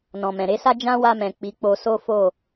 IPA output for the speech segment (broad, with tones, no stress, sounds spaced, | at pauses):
n ɔ̃˨ m ɛ̃˨ ɾ e˨˦ s a˦ d͡ʒ ã˦ w a˧ m ɛ̃˨ k͡p i˨˦ k͡p o˧ s o˦ f o˦˨